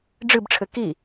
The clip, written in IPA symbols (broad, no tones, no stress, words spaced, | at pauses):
ɖ͡ʐɨbʈ͡ʂʰɘ ki